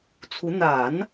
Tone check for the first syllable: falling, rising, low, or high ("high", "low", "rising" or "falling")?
rising